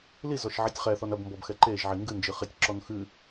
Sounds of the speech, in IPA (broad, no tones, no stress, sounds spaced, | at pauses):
l i z ɔ ʃ ʕ i tʲ χ ɛ θ ɔ n ɐ b m b ɔ b x ɛ ǃ e ʒ ʕ i ŋ ɡ ɨ n d͡ʒ ɨ χ e tʲ ǁ ɔ n x ɨ